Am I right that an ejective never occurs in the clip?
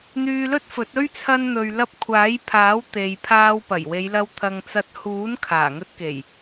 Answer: yes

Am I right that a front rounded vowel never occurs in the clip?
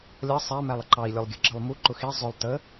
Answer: yes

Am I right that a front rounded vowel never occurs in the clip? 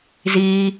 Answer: yes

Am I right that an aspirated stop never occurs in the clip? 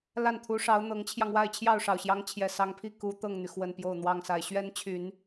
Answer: no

